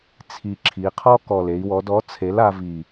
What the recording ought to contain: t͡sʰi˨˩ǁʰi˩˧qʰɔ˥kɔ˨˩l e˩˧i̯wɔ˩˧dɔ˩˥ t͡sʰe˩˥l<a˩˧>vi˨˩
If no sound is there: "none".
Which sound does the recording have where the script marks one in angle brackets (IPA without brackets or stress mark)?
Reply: a˩˧